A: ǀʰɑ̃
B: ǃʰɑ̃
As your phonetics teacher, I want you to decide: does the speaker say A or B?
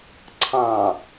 A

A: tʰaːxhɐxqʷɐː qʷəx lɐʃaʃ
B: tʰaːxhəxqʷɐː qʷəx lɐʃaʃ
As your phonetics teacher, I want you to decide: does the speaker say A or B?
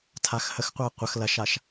B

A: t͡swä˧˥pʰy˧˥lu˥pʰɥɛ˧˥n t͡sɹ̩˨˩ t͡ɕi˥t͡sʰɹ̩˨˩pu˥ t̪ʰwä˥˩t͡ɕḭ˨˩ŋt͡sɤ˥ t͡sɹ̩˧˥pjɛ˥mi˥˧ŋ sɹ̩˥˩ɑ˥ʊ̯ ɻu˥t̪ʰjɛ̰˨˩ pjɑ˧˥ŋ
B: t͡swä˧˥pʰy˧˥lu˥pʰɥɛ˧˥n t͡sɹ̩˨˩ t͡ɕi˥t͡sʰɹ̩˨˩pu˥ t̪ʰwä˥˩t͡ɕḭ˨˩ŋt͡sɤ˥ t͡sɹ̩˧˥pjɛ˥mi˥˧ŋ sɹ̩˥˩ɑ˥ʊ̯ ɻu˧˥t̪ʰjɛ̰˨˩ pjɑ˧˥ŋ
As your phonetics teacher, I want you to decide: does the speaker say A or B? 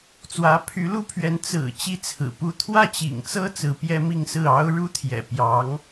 A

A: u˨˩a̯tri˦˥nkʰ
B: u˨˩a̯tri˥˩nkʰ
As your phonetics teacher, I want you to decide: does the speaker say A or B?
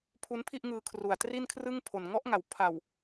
B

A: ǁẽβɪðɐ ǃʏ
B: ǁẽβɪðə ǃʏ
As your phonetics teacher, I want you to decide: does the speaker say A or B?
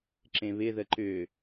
B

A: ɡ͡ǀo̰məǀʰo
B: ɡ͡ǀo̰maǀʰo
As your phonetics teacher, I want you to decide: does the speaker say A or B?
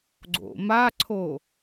B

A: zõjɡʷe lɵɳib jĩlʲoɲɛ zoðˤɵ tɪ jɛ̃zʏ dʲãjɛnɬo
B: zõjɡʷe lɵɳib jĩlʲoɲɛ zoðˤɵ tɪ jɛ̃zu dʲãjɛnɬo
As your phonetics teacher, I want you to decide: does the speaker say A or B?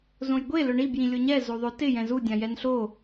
B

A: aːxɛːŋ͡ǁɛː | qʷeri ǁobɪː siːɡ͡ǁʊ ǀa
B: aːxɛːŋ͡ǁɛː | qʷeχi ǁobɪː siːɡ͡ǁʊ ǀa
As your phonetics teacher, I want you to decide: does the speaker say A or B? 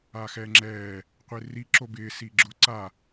A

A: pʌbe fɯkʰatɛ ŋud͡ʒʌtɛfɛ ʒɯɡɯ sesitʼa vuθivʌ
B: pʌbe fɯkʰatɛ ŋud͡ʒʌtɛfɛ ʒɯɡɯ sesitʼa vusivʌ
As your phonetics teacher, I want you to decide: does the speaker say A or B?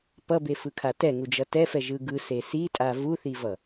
A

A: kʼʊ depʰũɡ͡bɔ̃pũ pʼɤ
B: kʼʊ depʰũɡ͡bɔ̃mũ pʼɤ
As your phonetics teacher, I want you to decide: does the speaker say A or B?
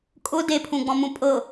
B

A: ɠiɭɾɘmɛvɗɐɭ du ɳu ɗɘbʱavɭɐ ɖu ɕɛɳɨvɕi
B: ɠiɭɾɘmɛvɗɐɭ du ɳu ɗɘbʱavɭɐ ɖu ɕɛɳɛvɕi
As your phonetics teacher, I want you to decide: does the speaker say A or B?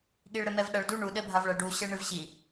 A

